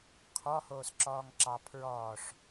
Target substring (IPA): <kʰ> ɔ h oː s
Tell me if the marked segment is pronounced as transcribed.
yes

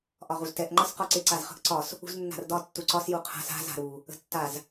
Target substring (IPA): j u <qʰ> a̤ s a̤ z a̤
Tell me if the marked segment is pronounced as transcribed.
yes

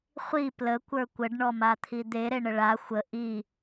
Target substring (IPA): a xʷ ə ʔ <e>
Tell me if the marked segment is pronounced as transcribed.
no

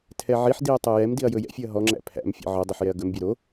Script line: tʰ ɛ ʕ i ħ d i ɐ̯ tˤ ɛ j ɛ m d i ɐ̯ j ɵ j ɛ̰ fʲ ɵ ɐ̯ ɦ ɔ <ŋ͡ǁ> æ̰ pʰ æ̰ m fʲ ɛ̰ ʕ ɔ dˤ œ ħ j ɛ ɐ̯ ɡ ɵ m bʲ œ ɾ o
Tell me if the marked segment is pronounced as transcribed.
yes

